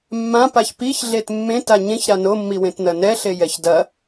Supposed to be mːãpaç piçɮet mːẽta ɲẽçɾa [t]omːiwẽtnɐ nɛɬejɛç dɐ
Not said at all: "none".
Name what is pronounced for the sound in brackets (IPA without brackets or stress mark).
n